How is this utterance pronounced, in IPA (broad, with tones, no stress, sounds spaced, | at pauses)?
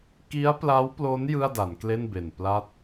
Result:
k i˦˥ a̯ p l a˦˥ w p l o˦˥ n j ɯ˥˩ a̯ d a˩˦ n k l e˥˩ n b e˨˩ n p l a˥˩ t̚